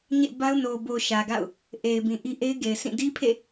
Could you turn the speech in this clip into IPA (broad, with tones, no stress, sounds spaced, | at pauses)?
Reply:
ɲ ḛ˦˨ b a˦ ʊ̯ n o˨ b o˨ ʃ ä˨ ɡ a̰˦˨ ʊ̯ | ʔ e˨ ɪ̯ b ĩ˨ ʔ i˦ ʔ e˦ ɪ̯ ɡ e˨ ɪ̯ sʰ ĩ˦˨ d i˦ pʰ ḛ˦˨